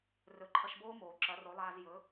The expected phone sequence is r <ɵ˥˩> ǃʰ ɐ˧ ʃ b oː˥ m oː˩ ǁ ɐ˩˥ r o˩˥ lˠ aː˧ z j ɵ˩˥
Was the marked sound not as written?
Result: yes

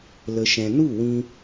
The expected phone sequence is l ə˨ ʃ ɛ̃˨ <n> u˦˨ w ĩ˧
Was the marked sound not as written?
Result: no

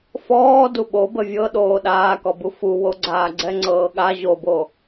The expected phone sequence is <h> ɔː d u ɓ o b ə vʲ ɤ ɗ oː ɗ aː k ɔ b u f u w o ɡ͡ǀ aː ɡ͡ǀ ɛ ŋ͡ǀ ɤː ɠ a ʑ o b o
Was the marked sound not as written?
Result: yes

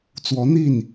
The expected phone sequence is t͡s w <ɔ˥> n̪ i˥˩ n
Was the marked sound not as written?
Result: yes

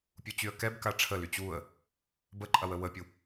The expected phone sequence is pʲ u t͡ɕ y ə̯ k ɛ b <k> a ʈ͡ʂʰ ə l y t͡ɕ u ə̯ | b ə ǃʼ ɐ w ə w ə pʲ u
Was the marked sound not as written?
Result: no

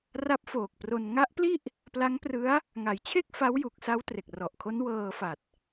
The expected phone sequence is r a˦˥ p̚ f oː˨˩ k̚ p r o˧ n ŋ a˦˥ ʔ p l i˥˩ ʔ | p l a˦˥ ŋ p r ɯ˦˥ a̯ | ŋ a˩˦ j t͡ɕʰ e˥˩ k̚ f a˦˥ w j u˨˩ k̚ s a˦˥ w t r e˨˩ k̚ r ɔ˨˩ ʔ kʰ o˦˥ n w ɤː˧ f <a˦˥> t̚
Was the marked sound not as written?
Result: yes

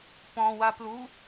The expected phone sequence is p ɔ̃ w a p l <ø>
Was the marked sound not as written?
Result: yes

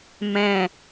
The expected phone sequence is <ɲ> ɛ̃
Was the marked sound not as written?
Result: yes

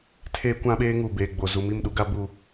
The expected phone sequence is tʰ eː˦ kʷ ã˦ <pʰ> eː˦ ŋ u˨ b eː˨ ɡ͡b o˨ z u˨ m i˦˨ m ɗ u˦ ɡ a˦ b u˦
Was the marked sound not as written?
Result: yes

